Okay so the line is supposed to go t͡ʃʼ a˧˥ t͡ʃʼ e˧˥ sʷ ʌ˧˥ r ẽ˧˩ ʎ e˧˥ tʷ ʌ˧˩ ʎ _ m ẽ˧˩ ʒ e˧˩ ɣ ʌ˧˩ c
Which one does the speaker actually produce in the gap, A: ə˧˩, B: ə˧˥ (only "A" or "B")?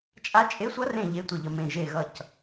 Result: A